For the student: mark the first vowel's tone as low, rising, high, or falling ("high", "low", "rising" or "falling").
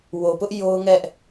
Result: low